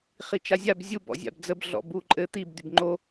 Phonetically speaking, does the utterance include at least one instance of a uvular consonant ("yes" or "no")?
yes